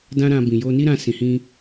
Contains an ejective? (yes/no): no